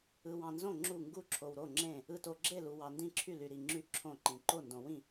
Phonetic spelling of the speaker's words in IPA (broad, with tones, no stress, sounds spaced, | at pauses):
ɯ˧ w ɑ̃˧ n z õ˥˨ ŋ͡ǁ u˥˨ ŋ ɡ u˥˨ ǁʰ o˧ w ɾ o˥˨ ŋ͡ǁ ẽ˥˨ | ɯ˧ t o˧ ɡ͡ǁ e˥˨ l u˧ w ɑ˧ n d ĩ˥˨ ǁʰ y˥˨ l y˧ ɾ i˧ ŋ͡ǁ y˥˨ ǁʰ õ˥˨ ǃ ĩ˧ ǃ o˥˨ n d õ˧ w ĩ˥˨